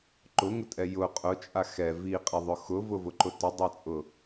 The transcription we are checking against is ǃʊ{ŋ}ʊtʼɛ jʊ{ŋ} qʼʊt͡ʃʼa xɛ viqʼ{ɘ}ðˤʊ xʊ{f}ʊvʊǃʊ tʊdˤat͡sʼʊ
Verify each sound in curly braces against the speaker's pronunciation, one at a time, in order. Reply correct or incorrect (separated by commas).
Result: correct, incorrect, incorrect, incorrect